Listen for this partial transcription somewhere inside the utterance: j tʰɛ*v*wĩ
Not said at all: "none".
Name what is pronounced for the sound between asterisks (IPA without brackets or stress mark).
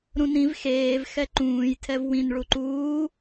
v